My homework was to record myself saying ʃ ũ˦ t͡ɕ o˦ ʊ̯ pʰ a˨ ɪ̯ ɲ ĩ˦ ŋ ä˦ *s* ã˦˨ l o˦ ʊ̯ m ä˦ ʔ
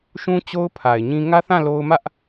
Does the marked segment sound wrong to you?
yes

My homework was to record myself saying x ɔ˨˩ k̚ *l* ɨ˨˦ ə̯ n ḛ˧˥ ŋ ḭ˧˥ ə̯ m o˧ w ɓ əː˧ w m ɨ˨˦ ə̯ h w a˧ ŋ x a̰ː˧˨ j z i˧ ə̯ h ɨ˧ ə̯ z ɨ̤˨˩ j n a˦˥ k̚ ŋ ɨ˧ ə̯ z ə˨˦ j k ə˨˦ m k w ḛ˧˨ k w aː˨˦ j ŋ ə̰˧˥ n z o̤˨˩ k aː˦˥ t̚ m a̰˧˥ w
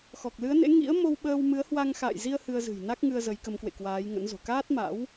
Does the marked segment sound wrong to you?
no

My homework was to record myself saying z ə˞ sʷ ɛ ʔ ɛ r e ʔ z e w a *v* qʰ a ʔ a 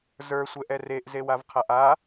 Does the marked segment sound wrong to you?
no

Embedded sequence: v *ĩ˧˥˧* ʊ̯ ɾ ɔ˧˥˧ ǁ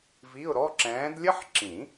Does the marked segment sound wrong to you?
yes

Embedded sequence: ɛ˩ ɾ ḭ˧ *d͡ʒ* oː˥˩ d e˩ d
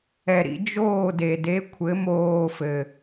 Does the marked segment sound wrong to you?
no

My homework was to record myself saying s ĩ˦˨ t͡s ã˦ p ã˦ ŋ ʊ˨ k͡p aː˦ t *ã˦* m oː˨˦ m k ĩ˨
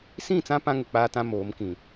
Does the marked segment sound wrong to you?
no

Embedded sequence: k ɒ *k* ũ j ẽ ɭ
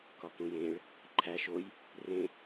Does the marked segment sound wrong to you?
no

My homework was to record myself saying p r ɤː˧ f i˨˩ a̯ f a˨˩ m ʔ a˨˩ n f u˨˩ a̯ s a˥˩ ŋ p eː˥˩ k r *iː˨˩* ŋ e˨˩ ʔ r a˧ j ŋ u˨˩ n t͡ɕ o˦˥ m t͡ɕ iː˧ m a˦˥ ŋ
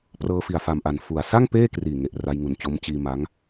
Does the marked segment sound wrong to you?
no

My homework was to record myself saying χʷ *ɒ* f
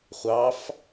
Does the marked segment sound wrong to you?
yes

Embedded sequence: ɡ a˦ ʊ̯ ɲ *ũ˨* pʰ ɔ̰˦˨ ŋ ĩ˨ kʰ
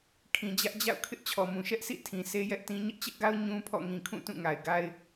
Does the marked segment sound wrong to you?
yes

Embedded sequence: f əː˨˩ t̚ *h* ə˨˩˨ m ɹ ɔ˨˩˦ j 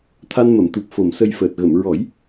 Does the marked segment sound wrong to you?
yes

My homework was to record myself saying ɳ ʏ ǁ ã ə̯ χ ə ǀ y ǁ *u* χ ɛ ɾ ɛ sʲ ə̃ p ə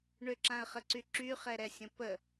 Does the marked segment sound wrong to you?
yes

